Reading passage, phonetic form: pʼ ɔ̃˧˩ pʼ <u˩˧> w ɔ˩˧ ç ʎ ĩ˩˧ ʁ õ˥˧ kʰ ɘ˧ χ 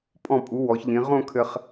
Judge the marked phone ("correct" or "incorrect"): correct